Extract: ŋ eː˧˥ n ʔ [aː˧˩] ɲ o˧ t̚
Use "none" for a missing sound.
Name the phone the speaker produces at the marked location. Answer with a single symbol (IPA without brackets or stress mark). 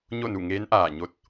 aː˧˩